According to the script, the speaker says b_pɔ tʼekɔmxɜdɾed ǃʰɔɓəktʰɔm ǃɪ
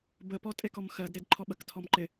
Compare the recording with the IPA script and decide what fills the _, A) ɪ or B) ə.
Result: B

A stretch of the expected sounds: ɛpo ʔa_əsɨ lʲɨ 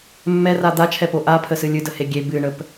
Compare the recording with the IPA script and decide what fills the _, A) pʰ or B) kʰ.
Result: A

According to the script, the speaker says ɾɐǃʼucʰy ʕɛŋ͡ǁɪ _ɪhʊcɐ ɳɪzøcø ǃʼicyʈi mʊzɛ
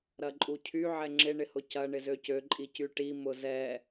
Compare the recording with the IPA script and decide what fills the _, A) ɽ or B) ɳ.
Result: B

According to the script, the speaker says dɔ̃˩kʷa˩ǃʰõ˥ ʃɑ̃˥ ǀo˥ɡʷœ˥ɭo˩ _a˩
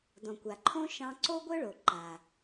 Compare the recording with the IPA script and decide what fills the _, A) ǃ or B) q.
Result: A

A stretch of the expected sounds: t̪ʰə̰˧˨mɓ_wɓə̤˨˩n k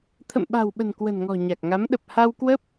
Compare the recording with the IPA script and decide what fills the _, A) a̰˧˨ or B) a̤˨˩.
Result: B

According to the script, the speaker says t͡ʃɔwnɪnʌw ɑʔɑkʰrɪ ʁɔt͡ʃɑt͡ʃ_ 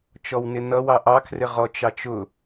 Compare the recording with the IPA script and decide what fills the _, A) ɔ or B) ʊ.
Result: B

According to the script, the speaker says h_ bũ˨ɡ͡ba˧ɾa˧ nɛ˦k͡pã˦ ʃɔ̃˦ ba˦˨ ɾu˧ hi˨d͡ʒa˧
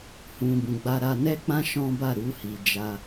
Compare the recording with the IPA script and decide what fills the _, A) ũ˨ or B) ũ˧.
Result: A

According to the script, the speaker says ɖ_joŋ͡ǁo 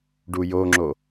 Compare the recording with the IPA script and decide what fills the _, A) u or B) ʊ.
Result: A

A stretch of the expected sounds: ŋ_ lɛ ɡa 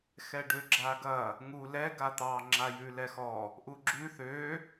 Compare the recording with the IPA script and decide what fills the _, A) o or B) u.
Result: B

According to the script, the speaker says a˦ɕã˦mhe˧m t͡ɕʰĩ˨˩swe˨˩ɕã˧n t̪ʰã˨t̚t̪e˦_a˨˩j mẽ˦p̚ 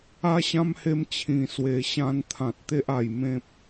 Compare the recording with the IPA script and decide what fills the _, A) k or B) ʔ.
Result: B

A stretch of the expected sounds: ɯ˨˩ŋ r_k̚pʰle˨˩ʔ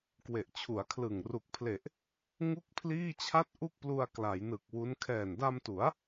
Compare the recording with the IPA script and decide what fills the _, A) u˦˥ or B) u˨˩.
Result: B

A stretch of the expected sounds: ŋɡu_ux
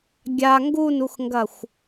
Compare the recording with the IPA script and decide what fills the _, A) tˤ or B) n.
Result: B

